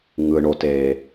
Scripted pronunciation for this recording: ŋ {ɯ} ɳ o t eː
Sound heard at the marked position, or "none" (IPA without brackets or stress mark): ɯ